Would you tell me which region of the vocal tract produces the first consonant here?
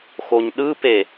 velum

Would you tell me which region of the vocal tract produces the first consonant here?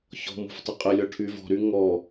palate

